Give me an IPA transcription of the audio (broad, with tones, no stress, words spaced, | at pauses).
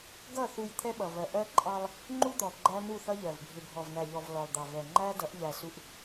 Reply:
ɡʌ˦˨ θu˨j t̪ʰɛ˦ɓʌ˨vɜ˨ ʔɜ˦ǃʼɑ˦lˠ | ŋ͡ǃu˦d̪ɔ˨ ɡ͡ǃæ˦nu˦˨θʌ˦ʎɜ˨v bʱɪ˨bʱɔ˨vnæ˨ʎɔ˨v lɔ˨lˠd̪ɑ˨vɛ˨ ŋ͡ǃæ˦ dʌ˨˦ʔʎæ˨ su˨ʔ